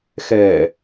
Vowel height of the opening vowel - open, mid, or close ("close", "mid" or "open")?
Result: mid